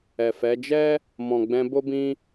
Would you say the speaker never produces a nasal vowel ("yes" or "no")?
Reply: no